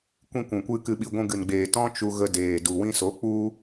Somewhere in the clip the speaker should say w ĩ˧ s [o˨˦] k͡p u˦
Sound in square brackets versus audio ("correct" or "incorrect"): correct